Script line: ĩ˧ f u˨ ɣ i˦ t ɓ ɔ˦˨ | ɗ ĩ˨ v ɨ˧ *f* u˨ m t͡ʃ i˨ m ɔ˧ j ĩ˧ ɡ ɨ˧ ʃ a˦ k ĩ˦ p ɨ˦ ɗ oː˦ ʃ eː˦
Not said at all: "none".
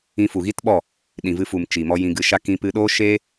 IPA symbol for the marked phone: f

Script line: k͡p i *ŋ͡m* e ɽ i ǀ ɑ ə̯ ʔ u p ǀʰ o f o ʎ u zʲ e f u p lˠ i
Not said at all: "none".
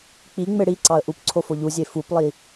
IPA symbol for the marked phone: ŋ͡m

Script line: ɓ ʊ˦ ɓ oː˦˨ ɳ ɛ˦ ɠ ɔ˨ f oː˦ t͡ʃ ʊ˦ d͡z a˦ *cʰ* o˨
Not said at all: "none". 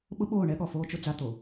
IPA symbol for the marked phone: t̪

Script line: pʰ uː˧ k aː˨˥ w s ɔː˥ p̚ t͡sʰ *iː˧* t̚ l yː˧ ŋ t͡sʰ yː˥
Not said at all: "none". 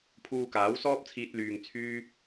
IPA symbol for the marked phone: iː˧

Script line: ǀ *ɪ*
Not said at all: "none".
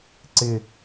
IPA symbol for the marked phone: ɪ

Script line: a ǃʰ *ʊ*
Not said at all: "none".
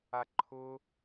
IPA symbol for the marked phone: ʊ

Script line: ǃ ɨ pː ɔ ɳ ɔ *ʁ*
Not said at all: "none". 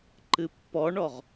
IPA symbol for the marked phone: ʁ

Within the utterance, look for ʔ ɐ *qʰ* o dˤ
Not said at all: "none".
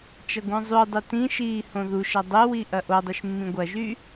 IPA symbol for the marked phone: ʔ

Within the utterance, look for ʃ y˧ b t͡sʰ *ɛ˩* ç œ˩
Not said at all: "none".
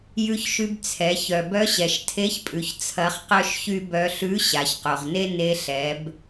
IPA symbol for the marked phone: ɛ˩˧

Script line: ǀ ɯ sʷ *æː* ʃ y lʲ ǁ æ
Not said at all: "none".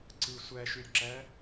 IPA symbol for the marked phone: æ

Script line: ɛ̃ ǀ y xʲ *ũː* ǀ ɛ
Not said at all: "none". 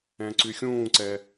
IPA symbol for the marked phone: ũː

